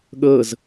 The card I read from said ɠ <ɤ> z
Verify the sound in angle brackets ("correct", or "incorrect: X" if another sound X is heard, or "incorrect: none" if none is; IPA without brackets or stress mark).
correct